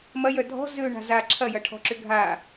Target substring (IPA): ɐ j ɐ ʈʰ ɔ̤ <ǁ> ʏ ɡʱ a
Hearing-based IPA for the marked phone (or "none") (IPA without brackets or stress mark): ǁ